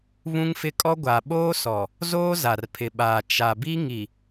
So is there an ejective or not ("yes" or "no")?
yes